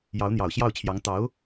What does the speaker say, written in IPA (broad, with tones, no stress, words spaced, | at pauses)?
jɑ˧˥ʊ̯n̪jɑ˨˩ʊ̯ɕjɑ˥˩ʊ̯t͡ɕʰjɑ˧˥ŋ t̪ɑ˧˥ʊ̯